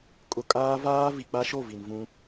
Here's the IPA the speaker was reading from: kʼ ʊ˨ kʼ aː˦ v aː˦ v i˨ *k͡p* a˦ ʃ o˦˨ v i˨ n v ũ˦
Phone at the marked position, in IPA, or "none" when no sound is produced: k͡p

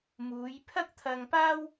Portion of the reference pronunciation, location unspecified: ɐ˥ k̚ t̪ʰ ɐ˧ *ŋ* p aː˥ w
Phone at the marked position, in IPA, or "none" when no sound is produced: ŋ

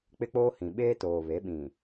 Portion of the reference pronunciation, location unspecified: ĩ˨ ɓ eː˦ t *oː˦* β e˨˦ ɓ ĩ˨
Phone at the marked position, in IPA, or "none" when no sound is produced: oː˨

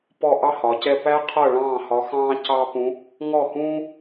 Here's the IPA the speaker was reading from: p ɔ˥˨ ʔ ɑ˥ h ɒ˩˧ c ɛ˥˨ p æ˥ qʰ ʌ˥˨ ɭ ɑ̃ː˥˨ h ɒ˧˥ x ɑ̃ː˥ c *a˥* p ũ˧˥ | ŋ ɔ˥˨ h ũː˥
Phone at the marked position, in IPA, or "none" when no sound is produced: ɑ˥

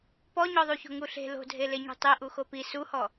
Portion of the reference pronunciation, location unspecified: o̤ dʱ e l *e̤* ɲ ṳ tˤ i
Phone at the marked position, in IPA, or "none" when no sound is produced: e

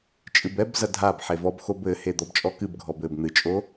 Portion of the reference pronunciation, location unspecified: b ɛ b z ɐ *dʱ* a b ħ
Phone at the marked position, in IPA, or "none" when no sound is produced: dʱ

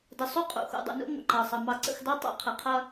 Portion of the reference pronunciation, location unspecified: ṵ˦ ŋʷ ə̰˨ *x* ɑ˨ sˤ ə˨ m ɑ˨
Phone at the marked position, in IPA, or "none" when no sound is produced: ǃ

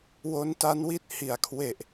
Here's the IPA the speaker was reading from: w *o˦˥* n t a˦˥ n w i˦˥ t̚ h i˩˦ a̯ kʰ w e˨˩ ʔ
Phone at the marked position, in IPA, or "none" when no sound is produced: o˦˥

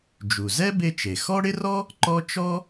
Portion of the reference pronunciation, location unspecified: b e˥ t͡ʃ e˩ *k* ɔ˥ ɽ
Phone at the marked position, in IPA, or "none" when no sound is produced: x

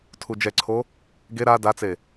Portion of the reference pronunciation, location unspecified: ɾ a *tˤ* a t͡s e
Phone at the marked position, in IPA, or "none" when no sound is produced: d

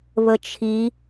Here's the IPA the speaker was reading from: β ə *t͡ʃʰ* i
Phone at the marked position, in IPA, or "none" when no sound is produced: t͡ʃʰ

